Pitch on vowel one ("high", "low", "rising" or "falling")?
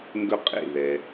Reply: high